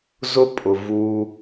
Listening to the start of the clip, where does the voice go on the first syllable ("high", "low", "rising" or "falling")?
high